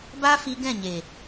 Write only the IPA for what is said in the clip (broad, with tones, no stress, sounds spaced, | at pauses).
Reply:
b a˦ f i˦ ɡ ɛ̃˦˨ ɲ e˨